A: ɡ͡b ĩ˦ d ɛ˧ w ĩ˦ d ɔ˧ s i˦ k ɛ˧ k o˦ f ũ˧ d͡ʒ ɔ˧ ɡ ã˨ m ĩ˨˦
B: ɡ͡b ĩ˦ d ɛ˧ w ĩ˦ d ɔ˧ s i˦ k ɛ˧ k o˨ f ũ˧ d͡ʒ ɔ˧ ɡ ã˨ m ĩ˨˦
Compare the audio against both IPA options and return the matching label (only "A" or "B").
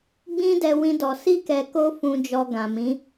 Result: A